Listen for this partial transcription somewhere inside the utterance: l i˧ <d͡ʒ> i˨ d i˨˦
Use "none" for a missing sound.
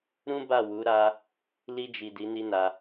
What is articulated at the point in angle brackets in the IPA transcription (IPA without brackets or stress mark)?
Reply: d͡ʒ